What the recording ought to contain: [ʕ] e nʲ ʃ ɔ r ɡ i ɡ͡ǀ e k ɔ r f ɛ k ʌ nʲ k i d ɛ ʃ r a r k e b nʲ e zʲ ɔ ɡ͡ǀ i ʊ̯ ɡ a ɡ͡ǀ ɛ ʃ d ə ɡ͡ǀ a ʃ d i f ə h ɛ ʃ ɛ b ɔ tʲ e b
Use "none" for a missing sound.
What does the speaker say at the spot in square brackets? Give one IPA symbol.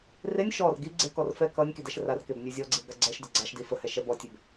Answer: r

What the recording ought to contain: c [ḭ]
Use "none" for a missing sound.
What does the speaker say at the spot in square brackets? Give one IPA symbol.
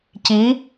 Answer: i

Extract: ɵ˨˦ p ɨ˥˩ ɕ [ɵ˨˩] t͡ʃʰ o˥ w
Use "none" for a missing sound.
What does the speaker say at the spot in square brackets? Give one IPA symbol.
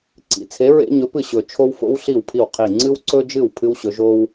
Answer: ɵ˨˩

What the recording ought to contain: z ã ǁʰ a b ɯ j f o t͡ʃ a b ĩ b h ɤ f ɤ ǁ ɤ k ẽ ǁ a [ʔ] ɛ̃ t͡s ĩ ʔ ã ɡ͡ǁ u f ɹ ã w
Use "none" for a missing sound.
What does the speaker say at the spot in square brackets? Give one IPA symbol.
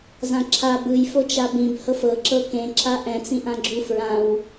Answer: ʔ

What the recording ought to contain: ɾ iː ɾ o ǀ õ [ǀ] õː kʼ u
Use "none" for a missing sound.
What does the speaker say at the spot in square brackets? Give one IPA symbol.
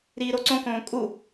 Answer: k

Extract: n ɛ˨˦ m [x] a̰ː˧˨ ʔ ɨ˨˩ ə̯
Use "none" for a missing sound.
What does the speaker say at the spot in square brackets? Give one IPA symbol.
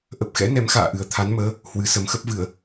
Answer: x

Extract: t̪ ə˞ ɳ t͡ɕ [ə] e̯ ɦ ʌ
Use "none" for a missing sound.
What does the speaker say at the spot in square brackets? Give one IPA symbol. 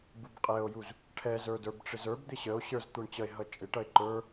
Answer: ʌ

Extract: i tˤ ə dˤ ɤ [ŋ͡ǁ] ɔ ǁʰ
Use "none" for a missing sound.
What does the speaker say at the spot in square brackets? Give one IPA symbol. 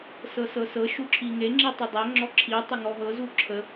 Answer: ŋ͡ǁ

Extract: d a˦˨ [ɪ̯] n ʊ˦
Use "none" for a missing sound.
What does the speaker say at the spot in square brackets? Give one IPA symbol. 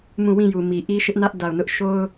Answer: ʊ̯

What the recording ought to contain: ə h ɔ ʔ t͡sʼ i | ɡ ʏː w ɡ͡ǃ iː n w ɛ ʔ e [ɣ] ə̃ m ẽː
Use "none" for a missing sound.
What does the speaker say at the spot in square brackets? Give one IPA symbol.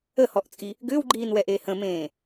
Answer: h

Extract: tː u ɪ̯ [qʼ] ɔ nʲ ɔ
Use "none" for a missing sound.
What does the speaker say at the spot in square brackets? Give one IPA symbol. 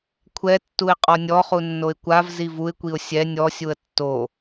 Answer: qʼ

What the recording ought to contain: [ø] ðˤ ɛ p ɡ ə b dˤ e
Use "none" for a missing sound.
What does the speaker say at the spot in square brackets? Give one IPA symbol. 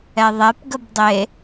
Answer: ɛ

